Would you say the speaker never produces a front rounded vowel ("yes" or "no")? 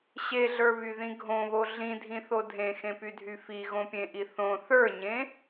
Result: no